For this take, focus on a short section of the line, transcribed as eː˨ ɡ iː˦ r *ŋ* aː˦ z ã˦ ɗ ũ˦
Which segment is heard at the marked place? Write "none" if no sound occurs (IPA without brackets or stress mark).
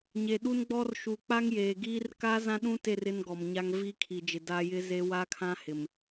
k